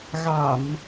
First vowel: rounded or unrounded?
unrounded